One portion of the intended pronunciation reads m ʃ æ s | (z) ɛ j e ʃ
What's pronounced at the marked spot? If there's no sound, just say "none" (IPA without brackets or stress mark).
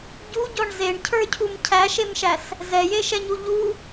z